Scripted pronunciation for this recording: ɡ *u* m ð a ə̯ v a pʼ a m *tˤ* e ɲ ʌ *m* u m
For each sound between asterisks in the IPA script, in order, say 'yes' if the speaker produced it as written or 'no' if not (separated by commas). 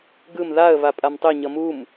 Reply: no, yes, yes